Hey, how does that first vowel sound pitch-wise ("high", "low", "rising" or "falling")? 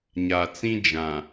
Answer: low